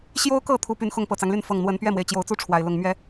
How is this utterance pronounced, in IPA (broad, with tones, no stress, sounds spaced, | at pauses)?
ɕ j o˦ ʊ̯ k ɤ˥˨ t̪ʰ u˨˦ p y˨˩ n x ʊ˥˨ ŋ p ɤ˨˩ t͡s ɑ˦ ŋ l y˥˨ n f ɤ˨˩ ŋ n̪ w ə˨˦ n p ɥ ɛ˥˨ m w e˩ ɪ̯ t͡ɕ j o˨˦ ʊ̯ t͡s u˦ ʈ͡ʂʰ w a˨˩ ɪ̯ l ʊ˥˨ ŋ m ɥ ɛ˦